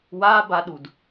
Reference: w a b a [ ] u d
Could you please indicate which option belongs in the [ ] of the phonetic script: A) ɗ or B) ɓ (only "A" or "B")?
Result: A